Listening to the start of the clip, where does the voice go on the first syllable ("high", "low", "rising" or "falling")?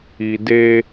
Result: low